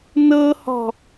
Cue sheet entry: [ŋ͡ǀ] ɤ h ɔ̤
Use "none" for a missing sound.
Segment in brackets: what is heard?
n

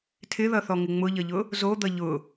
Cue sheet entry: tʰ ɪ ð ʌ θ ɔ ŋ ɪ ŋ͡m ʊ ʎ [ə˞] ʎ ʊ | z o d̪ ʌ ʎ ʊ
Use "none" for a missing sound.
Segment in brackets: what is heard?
ʌ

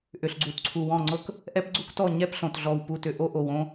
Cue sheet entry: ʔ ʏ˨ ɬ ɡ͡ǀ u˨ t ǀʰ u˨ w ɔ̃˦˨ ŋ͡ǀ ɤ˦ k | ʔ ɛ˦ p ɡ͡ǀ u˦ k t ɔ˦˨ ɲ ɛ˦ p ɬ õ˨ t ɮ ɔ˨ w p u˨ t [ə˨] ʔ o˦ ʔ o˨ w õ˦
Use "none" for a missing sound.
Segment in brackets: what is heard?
ʏ˨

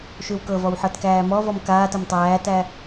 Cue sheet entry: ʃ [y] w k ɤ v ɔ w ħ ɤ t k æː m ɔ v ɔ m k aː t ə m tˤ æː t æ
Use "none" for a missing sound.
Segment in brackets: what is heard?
y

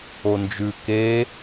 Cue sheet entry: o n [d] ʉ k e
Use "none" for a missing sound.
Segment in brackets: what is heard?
d͡ʒ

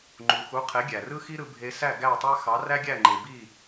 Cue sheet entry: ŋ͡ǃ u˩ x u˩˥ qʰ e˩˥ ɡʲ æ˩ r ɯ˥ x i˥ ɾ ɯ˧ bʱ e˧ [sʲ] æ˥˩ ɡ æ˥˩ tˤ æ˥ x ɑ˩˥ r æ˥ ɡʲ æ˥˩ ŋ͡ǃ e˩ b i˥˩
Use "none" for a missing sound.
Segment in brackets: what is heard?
s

